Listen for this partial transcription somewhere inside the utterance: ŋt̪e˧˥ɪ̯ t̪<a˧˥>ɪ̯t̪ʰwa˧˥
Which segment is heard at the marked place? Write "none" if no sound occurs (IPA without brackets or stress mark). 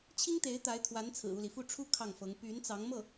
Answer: a˧˥